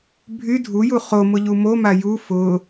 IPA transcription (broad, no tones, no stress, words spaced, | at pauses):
bʱy dʱuju χo mʊʎumoma ju fʊ